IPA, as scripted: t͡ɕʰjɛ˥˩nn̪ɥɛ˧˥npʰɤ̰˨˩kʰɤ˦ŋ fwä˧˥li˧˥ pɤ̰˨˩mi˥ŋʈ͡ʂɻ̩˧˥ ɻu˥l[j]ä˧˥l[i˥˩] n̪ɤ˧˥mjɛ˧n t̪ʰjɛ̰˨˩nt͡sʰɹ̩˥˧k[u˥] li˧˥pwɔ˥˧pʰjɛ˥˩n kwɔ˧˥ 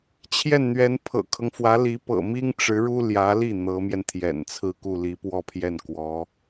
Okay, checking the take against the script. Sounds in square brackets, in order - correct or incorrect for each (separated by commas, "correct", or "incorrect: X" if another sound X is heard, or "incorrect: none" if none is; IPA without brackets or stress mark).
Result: correct, correct, incorrect: u˥˩